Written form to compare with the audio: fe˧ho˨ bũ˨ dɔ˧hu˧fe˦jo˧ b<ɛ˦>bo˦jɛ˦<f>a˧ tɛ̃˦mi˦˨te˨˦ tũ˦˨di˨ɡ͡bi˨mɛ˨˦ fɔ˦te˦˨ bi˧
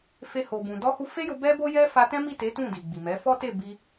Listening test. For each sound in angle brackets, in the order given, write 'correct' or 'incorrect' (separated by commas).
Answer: correct, correct